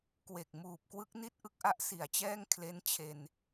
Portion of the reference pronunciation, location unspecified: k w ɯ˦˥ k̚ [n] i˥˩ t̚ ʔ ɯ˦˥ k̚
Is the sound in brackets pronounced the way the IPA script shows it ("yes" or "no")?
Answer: yes